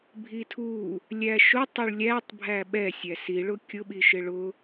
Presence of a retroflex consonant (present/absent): present